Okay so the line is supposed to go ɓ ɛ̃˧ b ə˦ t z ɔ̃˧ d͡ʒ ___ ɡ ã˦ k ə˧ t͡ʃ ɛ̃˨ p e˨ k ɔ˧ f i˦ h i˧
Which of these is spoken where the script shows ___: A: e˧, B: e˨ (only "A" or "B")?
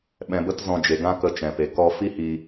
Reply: B